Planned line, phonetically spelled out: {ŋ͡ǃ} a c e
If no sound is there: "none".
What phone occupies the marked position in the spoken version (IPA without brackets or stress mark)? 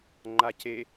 ŋ͡ǃ